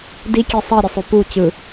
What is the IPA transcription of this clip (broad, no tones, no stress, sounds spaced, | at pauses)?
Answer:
d i kʲ e sˤ ʌ ɾʲ e sˤ o p u t͡ɕ ɯ